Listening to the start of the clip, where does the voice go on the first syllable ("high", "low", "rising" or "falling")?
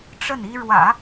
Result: falling